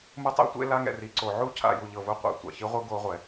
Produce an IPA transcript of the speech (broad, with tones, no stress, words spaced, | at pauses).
mɯ˦tˤḛ˦tʷḛ˦ la˦ŋɛ̰˨ri˨ǀo˨ ʕu˦cʰa̰˨ ju˨ʎɤ˨vu˦ qʷa̰˨ tʷa̰˨çi˦ʁʷɯ˦ ɡo˦ʁʷɛ˨